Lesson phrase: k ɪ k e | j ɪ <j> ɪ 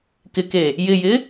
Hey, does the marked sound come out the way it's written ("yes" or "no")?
yes